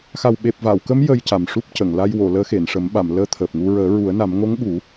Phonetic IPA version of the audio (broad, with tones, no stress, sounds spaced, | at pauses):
x a˨˩ w ɓ e˨˩ p̚ v a˨˩˨ w k ə˧˥ m j ə˧ j c a˨˩ m ʂ u˦˥ p̚ c ə˨˩˨ ŋ l a˧ j w o˨˩˨ l əː˧˥ x e˨˩˨ n ʂ ə˨˩˦ m ɓ a˨˩˨ m l əː˧ t̪ʰ əː˨˩ p̚ ŋ u˧ ɹ əː˨˩˦ ɹ u˨˩˦ ə̯ n a˨˩˦ m ŋ o˧˥ ŋ ɓ u˨˩˦